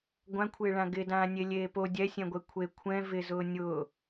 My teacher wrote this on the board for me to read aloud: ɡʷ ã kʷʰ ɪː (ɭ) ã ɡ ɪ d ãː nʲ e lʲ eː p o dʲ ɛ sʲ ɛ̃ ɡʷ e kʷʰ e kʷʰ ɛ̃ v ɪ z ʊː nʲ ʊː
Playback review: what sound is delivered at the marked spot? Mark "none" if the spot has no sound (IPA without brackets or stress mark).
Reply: ɭ